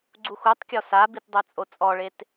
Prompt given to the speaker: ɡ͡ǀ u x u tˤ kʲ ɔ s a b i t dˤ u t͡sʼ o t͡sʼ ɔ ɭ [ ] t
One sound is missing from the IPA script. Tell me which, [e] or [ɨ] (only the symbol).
e